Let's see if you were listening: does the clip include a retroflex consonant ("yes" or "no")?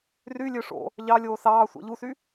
yes